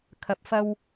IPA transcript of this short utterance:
kʰɐ˨p̚fɐ˧w

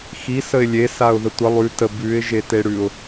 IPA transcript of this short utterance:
xi səɪ̯lʲe saʊ̯ðətʷə lˠʉ tə bʉɪ̯ ʒeteɽʉʊ̯

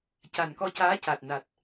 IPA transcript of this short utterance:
ca˨˩nkɔ˧caː˧˥ca˨˩t̚ na˨˩t̚

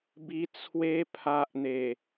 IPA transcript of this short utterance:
bi˧ t͡sʰwe˧pʰa˨ʔn̪e˨˩

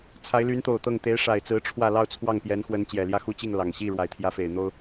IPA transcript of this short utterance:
t͡sʰa˧˥ɪ̯ly˧˥nt̪o˨˩ʊ̯ t̪ɤ˥˩ŋ t̪e˧˥ɪ̯ʂa˨˩ɪ̯t͡sɹ̩˧˥ ʈ͡ʂʰwä˥˧ lɑ˥˧ʊ̯t͡sʰwɑ˥˩ŋpjɛ˧˥nxwə˧˥n t͡ɕjɛ˨˩ljä˥˧xu˥˧t͡ɕi˥˩ŋ lɑ˨˩ŋ ɕi˥˩ ɻwa˨˩ɪ̯t̪ʰjä˧˥fe˨˩ɪ̯n̪o˥ʊ̯

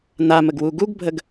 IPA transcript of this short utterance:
naməɡwu ɡuɡbʱəɡ

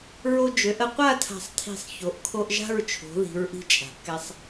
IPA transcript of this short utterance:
ɹo˧d͡ʒø˩˧ʔ ə˧qʷa˥˧ tʰa̤˧˩sˤtʰi̤˧˩sˤ ço˩˧ʔ kʰo˧ʔʒa̤˥˧ɹt͡ʃʰo̤˩˧ ði̤˩˧ɹʔi̤˧ t͡ʃʼa̤˩˧ʔkɛ˧sˤ

